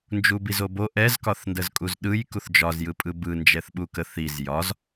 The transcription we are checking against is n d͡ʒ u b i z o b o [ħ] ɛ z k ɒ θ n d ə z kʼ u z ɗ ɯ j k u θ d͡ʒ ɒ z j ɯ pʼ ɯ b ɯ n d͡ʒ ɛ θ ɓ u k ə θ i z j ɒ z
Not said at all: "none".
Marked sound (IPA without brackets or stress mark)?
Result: ʔ